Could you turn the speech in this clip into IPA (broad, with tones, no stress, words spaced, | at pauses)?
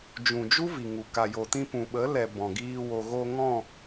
d͡ʒũ˨d͡ʒu˦ vi˨ŋu˨ ka˨jo˨tĩ˧pũ˨ ɓə˨˦lɛ˨ bɔ̃˨ɡiː˧ wo˨ ɣo˧ ŋɔ̃˦˨